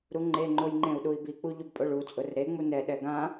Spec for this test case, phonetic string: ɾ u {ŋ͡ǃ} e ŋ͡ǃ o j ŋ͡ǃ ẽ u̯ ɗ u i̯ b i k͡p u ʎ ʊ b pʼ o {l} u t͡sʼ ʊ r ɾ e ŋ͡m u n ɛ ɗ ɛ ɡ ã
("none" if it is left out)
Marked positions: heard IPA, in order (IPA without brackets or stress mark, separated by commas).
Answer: ŋ͡ǃ, ɭ